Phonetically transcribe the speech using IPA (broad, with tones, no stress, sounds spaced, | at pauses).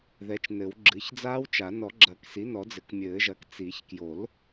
ð ɛ˩˥ t͡ʃ n ɘ˨˩˦ w ɡ͡ǁ ɨ˩˥ ç d͡z aː˦˥ w t͡ʃ a˨˩˦ n ɔ˨˩˦ ɡ͡ǁ ɐ˨˩˦ k s i˩˥ n ɔ˨˩˦ d͡z ɘ˩˥ k mʲ ɘː˨˩˦ ʒ ɐ˩˥ k t͡s i˨˩˦ ç k j o˨˩˦ l